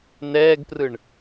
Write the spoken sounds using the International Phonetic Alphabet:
n ɛː ɡ p r ɯ ɳ

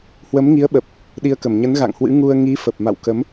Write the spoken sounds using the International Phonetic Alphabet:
h w ə˨˦ m ŋ i˨˦ ə̯ ɓ ə˨˩ p̚ | ɗ i˧ ə̯ k ə˧˩ m ɲ ə˨˦ n ɣ a̰˧˨ ŋ h w ɨ̰˧˥ ŋ u˧ ə̯ ŋ i˨˦ f ə˨˩ p̚ m a̰˧˨ w k ə˨˦ m

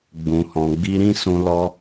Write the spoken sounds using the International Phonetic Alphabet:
ɡ͡b ũ˧ h ɔ̃˧ ɡ͡b i˦ ɾ ĩ˦ s ũ˧ l ɔ˧

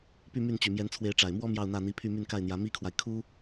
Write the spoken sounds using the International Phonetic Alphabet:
p y˥˧ m y˥˩ n t͡ɕ y˨˩ m j ɛ˧˥ n t͡sʰ w e˧˥ ɪ̯ ʈ͡ʂ a˨˩ ɪ̯ m w ɔ˥ m j ɑ˥˧ ʊ̯ n̪ ä˥˩ n̪ i˧˥ pʰ y˥˧ m y˥˧ n k a˥˩ ɪ̯ n̪ j ä˧˥ m i˥ kʰ w a˨ ɪ̯ kʰ u˥

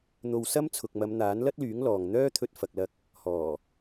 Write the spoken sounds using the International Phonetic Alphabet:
n̪ o˧ w s ɐ˥ m t͡sʰ ʊ˨ k̚ m ɐ˨˧ m n̪ aː˨˥ n l ɐ˥ t̚ l yː˨˥ ŋ l ɔː˨ ŋ n̪ œː˥ t̪ʰ ɵ˧ t̚ f ɐ˨ k̚ l ɐ˧ k̚ | h ɔː˨˩

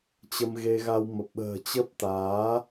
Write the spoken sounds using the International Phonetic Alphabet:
t͡ɕ ə˧ m ɣ e˧ ɣ a˧ w m ə˨˩ p̚ ɓ ə̤ː˨˩ t͡ɕ ə˦˥ p̚ t̪ aː˨˦

